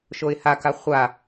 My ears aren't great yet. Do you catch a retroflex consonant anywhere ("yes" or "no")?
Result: no